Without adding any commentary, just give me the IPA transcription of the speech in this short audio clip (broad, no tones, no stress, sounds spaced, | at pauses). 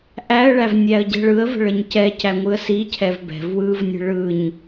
ʔ æ ə̯ ɭ æ v nʲ æ ə̯ ɟ ɛ̤ ɭ ɯ ə̯ v ə̤ ɭ ə ɲ c ɛ c æ ŋʷ ɯ ə̯ s i cʰ ɛ v b ɛ̤ v w ɯ v nʲ ə̤ ɭ ɯ ɲ